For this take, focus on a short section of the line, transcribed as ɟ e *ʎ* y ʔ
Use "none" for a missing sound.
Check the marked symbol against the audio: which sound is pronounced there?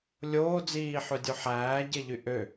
ʎ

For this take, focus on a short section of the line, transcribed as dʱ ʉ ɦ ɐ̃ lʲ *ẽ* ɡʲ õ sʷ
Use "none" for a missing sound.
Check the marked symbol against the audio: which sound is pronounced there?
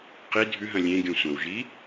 ẽ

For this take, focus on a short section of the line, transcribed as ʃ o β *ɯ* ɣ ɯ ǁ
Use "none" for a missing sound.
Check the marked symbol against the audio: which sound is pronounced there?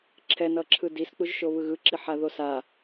ɯ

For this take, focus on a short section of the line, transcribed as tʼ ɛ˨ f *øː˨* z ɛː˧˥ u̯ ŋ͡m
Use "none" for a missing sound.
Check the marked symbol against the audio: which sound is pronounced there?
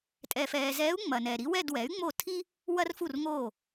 ɛː˨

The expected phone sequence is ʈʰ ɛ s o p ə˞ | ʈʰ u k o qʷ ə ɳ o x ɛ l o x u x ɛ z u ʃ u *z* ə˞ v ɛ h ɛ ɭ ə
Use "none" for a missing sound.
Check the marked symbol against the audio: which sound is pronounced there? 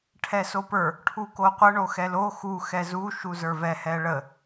z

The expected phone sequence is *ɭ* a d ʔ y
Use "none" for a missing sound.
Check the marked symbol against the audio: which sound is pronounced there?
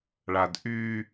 ɭ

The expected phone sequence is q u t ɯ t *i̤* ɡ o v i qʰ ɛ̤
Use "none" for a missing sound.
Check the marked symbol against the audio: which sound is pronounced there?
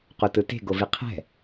e̤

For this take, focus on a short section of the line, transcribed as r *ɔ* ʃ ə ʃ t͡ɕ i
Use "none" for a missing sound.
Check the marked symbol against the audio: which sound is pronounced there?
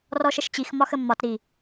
ɔ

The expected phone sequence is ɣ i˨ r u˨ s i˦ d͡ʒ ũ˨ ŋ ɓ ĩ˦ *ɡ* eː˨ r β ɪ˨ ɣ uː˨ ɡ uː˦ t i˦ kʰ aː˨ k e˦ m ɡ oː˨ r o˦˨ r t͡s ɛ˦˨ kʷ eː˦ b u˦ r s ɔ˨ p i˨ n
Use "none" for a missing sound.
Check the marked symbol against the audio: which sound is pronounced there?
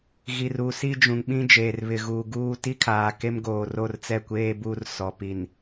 d͡ʒ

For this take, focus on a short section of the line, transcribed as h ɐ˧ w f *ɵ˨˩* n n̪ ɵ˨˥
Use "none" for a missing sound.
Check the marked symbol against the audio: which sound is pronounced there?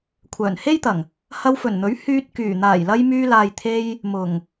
ɵ˨˩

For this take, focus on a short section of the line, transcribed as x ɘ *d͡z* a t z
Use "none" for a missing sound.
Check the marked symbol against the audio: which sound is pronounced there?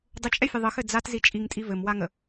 d͡z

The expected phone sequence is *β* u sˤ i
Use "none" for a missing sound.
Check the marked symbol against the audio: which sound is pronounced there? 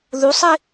ð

